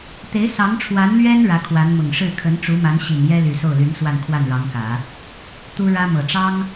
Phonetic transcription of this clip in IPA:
t̪e˧˥ɪ̯ sɑ˧˥ŋʈ͡ʂʰwa˧˥nlɥɛ˥n ɻä˧˥kʰwa˧˥nmʊ˨˩ŋ ʂɻ̩˥˩ kʰə˧˥nʈ͡ʂu˧˥ma˧˥n ɕi˨˩n jɛ˥ly˨˩ so˥˩ʊ̯ly˧˥nswa˥˧n kʰwa˥˩nɻɑ˧˥ŋkä˨˩˦ | t̪u˥ ɻä˥mɤ˨˩ʈ͡ʂɑ˥ŋ

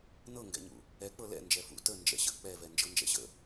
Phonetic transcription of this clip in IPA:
nɤŋɡɛ̰ɲṵ | ɛ k͡pɤlɛ̰ nd͡ʒɛfṵ tə nd͡ʒɛ̰ɕə̰k͡pɛvɛ nd͡ʒɤnd͡ʒɛ̰ɕə̰

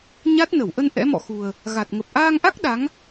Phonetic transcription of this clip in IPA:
ɲa˦˥t̚nə˧˩w ʔə˧n ʔɛ̰˧˥mɔ̰˧˨xu˨˩ə̯ | ɣa˨˩t̚ ŋə˨˩p̚ʔaː˧ŋʔa˦˥k̚ ɗa˨˦ŋ

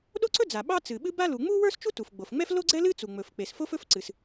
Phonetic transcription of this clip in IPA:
ɗo˥ǀɵ˥d͡za˩ ɓɑ˥t͡sɨ˩ɓɨ˥ ba˥lu˩ ŋ͡mu˥wə˞˥st͡ʃu˥ tu˩fɡ͡bo˩fŋ͡mɛ˥f lo˥ɡ͡ǀɛ˥lɨ˥ t͡su˩ŋ͡mɵ˩f k͡pe˩s fo˥fɵ˥fǀɨ˩s

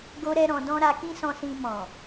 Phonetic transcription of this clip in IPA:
ɡo˦ɾɛ˦ɾɔ̃˧ dɔ̃˦ ɾa˧kĩ˦sɔ̃˧sĩ˧ mɔ̃˨

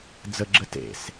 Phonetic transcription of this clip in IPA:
d͡zəɡ͡ǁə tḛs

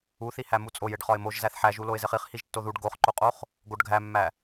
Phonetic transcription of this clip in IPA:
uθi hæmut͡sʼoj eɖχɒɪ̯moʒ zæθħæʒu loɪ̯zeχiχ hiʒtːoðuɖ ɡoχǃoqʼoχ | ɡoɖɡʱæmːæ

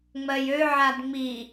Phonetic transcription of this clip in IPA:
ŋ͡mɜjøʕad ŋ͡mi

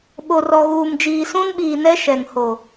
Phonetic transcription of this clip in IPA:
ɓo˨rɔ˨ɣuː˨md͡ʒiː˨ sũ˦nɓiː˨nɛ˦ ʃɛ˨ŋho˨

